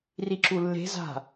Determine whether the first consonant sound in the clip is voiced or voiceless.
voiced